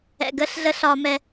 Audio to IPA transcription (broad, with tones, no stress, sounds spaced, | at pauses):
ɛ̰˧ ɡ əː˦ ɬ ɮ ə˦ ɬ ɒ˦ m ɛ˦